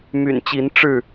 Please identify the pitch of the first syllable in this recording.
low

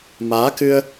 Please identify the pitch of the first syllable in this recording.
rising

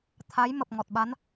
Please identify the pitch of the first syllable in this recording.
rising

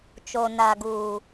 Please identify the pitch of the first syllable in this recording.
low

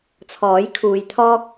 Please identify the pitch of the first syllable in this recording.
rising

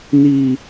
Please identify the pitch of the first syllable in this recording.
high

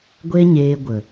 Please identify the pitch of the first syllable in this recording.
high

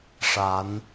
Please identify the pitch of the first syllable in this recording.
rising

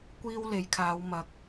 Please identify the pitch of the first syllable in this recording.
high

